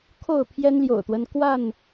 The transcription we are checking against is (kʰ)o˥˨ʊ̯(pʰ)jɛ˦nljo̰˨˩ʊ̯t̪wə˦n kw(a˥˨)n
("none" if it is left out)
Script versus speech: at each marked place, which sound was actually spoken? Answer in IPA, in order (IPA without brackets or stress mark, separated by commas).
kʰ, pʰ, a˥˨